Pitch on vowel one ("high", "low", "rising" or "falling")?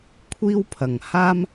high